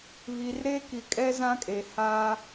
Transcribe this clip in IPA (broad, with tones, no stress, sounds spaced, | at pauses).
β i˨ r ɾ e˦ k i˨ kʼ ɛ˦ z ã˦ kʼ e˨ h aː˦